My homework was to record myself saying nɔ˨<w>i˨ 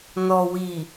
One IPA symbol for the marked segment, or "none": w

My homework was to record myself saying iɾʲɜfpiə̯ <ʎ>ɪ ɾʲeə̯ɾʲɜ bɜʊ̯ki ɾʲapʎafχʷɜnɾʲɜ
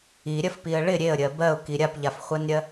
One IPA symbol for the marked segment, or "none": ɭ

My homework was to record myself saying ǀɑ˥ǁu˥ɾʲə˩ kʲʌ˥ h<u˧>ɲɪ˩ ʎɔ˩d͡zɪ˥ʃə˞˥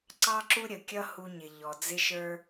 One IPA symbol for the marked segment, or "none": u˧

